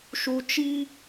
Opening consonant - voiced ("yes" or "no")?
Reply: no